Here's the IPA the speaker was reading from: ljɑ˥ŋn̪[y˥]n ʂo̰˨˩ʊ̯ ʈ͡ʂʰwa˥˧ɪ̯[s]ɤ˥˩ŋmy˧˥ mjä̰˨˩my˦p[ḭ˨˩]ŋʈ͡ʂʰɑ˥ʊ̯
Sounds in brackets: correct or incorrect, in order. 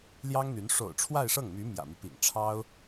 incorrect: y˧˥, incorrect: ʂ, correct

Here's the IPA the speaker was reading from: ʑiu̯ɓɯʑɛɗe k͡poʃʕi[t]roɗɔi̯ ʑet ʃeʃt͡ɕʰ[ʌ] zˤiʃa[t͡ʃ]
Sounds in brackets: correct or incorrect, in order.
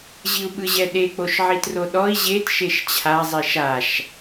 correct, incorrect: a, incorrect: ʃ

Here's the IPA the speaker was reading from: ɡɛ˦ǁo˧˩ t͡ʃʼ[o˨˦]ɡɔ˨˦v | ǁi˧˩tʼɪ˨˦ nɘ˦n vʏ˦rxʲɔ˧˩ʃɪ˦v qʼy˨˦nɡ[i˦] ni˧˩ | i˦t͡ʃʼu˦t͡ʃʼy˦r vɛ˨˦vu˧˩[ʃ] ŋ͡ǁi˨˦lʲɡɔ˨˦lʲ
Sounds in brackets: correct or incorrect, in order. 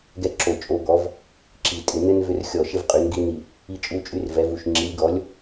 correct, correct, correct

